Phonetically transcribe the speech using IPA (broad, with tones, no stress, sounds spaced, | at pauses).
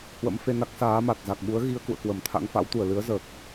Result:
h w ə̰˧˥ m f e˧ n a˦˥ k̚ s aː˨˦ m a˨˩ t̚ z a˨˩ k̚ ɓ u˨˦ ə̯ ɣ i˧ ə̯ k ṵ˧˨ ə̯ k w ə˧˩ m t̪ʰ a̰˧˥ ŋ f a̰˧˥ w t̪ u˧˩ ə̯ l ɨ˨˦ ə̯ z əː˨˩ k̚